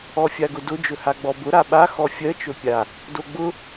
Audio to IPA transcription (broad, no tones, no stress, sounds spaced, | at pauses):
ɔ fʲ a ɡ ʊ d ʊ d͡ʒ ɵ h a ɡ͡b ɔ b ʊ ɾ a ɓ a x ɔ fʲ ɜ t͡ʃ ɵ pʲ a | d o ɡ͡b ʊ